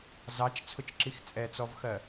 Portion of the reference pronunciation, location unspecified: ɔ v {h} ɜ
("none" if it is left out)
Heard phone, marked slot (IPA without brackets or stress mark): x